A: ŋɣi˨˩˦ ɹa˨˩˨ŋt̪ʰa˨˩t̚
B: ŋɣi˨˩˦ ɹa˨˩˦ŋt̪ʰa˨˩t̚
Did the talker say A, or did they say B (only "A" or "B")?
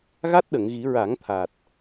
B